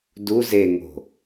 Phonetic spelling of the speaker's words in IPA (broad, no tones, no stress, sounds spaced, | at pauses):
d u z e ŋ o̤